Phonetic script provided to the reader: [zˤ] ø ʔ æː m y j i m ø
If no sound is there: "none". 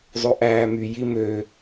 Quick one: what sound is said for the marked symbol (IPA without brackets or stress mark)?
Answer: zˤ